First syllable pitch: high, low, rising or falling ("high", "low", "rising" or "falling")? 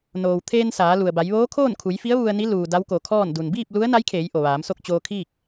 low